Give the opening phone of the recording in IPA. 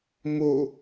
m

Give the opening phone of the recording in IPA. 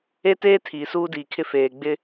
e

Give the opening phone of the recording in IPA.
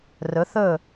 r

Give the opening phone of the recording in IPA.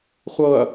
χʷ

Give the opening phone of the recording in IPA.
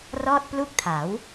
r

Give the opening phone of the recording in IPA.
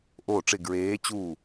ʔ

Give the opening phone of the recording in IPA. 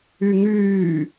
y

